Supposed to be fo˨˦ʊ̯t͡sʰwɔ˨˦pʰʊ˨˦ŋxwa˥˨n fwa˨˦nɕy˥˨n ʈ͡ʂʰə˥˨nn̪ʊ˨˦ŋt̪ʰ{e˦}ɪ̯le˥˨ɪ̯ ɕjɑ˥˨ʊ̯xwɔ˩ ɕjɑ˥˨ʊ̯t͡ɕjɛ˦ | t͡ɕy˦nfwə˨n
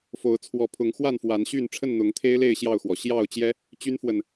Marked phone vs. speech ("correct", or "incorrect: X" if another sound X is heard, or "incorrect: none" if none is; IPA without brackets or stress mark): correct